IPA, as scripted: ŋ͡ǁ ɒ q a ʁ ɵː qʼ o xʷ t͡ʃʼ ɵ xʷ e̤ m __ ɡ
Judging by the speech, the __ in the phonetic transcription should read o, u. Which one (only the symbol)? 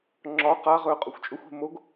o